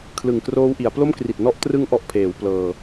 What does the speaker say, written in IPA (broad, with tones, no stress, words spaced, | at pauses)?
kʰlɯ˨˩ŋkroː˦˥wʔi˩˦a̯ plo˥˩mkri˨˩t̚ nɔ˥˩ʔ trɯ˦˥ŋʔɔ˨˩ʔpʰeː˩˦w plɤː˧